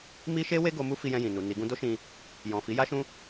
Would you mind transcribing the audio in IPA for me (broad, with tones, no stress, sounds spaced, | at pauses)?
m i˦ ʃ e˦ w e˦ ɡ o˧ m u˦ f i˧ j ɛ̃˧ j ĩ˨ n u˨ n i˨ ɡ ũ˧ d o˦ ʃ ĩ˧ | j ɔ̃˨ f i˨˦ j a˦ ʃ ũ˦